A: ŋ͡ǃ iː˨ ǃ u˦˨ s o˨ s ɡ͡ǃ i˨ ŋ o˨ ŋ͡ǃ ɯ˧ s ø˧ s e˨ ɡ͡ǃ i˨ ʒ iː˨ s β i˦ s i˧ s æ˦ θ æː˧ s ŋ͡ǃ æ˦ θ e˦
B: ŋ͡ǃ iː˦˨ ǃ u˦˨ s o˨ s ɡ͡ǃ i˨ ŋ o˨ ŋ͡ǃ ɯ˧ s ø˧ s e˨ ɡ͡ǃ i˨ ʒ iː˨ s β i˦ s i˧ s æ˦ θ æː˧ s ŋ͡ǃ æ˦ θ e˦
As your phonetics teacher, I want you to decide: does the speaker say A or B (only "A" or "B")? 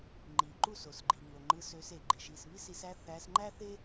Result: A